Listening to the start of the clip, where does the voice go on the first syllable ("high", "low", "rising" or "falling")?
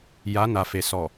rising